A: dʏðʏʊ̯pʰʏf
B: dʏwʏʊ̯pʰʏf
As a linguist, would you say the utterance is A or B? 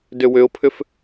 B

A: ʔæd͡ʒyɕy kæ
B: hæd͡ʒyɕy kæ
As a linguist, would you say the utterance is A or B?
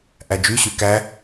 A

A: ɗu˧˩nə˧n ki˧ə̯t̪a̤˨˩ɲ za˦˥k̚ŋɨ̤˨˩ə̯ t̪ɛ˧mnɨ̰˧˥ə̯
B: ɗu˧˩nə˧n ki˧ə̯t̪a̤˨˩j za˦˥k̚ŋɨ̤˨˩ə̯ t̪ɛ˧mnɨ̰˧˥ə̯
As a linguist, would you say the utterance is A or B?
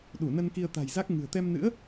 B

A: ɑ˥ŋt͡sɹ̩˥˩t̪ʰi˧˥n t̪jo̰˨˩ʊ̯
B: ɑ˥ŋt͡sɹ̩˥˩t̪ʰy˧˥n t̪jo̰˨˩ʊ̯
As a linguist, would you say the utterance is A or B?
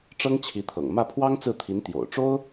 A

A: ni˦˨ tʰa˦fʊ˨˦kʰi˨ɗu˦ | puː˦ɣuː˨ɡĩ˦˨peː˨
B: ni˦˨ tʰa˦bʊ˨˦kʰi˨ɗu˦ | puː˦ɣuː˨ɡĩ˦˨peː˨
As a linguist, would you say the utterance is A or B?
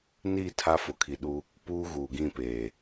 A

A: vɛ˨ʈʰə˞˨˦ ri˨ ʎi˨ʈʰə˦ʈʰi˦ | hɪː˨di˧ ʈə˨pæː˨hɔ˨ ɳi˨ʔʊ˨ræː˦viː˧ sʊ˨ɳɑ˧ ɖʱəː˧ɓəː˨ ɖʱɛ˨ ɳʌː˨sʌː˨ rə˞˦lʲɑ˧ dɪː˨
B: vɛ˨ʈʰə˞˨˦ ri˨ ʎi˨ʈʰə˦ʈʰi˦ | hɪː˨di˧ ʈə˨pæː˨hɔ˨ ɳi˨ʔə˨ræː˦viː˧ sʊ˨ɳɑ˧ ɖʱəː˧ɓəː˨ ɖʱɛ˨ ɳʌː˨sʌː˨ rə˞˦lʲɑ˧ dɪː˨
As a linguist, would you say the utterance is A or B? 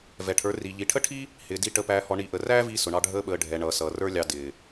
B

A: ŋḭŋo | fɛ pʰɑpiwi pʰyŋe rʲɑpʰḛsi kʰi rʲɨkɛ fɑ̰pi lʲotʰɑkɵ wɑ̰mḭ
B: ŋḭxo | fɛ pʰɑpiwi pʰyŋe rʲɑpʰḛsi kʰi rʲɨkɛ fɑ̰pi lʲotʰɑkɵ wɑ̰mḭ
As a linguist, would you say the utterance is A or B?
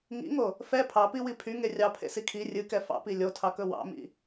A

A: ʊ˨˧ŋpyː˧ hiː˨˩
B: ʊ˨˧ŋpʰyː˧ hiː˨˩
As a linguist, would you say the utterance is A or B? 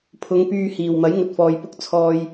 A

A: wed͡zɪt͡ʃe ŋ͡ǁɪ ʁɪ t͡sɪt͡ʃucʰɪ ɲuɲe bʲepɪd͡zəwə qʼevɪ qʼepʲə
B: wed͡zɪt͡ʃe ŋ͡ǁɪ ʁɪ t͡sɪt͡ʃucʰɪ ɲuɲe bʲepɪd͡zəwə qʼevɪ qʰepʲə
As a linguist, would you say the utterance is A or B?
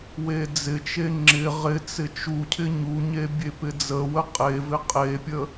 A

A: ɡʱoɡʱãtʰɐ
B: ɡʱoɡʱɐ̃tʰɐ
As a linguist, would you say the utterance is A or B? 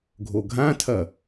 A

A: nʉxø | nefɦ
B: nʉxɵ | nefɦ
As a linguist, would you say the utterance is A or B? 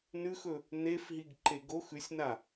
B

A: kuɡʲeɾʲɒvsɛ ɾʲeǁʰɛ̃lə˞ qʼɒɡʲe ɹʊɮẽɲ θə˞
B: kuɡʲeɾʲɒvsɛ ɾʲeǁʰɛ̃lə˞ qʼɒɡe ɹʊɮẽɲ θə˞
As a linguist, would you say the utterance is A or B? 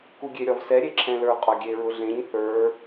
A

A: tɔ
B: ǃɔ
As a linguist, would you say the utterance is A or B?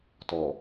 A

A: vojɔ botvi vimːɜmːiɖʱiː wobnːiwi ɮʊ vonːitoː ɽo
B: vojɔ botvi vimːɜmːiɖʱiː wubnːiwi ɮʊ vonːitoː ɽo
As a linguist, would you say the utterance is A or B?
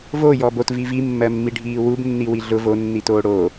B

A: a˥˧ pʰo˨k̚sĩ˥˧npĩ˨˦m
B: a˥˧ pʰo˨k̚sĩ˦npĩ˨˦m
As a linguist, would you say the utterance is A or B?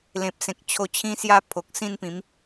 A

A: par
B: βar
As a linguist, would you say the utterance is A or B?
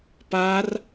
A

